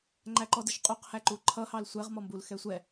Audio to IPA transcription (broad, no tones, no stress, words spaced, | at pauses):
ŋ͡ǃæǃɔdɪʃqʼuq hæǃuǃʰʌ hɑlsʷɛʁ mɔmbul xɛsʷɛ